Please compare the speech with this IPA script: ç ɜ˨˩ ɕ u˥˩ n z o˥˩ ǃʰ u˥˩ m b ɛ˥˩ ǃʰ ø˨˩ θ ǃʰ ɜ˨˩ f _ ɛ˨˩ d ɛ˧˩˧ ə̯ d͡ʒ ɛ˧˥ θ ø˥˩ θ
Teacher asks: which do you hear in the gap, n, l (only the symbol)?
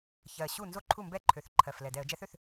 l